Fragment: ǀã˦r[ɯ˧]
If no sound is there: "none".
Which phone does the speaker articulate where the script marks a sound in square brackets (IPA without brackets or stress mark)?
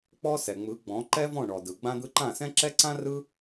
ɯ˦